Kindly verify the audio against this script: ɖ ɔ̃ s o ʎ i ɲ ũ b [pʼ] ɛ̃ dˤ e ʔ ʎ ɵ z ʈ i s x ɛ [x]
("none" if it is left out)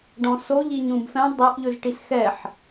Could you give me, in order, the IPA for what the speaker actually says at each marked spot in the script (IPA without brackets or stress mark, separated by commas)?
f, ħ